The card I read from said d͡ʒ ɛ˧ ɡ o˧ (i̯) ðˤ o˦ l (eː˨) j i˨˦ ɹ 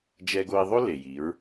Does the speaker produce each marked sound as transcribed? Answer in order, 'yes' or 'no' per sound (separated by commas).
yes, no